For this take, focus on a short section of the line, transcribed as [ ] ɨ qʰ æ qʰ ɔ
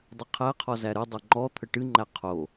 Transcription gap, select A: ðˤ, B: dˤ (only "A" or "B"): B